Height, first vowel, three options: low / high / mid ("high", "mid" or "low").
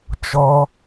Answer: mid